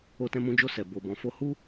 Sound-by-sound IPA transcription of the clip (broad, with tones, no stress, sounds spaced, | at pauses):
o˧ t ɛ̃˧ m ũ˧ d͡ʒ o˧ s ɛ˨ b o˨ b ɔ̃˨ f o˧ h u˦